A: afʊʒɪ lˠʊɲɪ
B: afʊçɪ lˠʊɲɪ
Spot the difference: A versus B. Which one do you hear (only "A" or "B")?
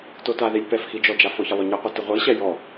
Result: B